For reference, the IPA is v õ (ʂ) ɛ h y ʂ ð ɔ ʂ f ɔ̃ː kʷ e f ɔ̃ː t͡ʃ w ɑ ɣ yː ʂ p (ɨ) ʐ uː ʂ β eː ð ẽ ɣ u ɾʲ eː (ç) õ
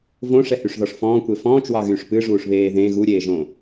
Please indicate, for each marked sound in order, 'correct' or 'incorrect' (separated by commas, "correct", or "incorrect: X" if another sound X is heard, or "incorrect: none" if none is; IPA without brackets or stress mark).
correct, correct, incorrect: ʒ